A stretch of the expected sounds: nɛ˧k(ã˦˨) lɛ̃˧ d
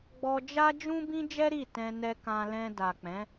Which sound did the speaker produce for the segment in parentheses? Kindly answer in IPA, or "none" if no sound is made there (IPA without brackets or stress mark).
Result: ã˧